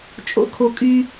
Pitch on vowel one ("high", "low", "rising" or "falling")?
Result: high